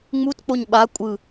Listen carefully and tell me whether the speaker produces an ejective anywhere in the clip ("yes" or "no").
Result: yes